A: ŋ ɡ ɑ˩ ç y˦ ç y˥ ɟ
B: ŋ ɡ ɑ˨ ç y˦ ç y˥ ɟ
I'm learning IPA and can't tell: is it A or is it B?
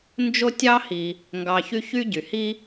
B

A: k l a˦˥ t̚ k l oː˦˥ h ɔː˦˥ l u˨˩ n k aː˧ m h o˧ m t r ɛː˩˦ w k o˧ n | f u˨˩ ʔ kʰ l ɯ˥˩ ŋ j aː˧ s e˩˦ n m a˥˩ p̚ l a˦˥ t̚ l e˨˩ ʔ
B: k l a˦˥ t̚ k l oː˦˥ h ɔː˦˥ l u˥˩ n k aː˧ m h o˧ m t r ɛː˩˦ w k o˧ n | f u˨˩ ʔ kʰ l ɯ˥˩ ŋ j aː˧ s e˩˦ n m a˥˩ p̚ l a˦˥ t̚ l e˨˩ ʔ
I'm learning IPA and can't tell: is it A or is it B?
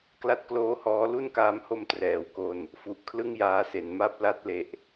B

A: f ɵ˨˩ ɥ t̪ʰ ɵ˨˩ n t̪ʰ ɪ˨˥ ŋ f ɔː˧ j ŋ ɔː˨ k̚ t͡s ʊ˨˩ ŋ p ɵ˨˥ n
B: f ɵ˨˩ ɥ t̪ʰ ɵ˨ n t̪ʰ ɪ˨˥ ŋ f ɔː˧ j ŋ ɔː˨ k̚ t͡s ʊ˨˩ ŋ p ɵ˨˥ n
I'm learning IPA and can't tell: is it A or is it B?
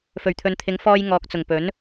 B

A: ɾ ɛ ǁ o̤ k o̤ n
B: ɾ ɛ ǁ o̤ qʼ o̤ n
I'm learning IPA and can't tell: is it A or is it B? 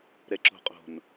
B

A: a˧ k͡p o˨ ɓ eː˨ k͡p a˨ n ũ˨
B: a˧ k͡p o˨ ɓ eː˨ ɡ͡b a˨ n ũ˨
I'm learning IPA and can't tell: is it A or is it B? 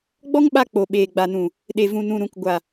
B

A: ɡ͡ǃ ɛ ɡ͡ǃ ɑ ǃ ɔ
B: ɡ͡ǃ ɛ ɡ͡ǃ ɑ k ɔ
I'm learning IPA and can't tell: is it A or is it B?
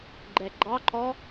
A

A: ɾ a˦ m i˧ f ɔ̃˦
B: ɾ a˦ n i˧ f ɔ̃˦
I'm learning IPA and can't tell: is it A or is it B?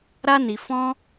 B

